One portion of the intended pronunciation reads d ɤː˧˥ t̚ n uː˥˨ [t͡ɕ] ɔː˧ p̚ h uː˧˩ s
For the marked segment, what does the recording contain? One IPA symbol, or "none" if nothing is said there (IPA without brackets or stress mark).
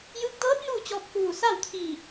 t͡ɕ